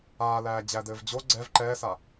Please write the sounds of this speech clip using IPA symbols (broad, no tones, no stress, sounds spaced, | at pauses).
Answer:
aː l æː d͡ʑ æ d ɘː v d͡ʑ o ɡ͡ǀ ɛ v ǃ ɛː s a